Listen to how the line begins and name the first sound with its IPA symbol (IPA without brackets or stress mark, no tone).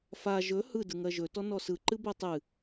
f